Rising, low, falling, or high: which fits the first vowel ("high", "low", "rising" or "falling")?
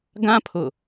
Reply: high